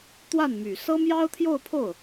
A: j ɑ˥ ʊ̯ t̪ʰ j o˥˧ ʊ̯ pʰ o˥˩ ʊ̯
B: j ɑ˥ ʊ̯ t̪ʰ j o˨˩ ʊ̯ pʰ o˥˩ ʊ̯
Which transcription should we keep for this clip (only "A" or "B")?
A